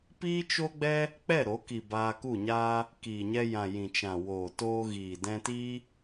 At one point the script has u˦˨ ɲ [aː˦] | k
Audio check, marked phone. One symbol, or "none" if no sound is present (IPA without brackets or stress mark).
aː˦